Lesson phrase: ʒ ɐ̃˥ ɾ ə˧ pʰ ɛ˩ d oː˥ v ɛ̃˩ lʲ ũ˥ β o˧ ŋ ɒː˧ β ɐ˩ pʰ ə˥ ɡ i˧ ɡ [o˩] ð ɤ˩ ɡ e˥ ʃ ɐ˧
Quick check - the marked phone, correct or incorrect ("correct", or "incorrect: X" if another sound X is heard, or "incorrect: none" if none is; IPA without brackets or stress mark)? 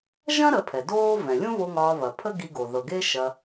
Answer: correct